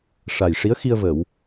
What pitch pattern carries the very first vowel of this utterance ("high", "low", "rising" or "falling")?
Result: low